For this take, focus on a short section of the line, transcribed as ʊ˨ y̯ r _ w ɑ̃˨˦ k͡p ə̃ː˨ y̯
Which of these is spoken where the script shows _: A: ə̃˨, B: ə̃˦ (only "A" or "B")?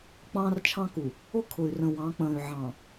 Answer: A